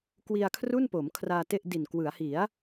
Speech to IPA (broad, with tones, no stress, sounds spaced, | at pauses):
k w i˧ a̯ kʰ r u˥˩ n p o˩˦ m kʰ r aː˧ t e˥˩ ʔ d i˨˩ n k w ɯ˩˦ a̯ h i˩˦ a̯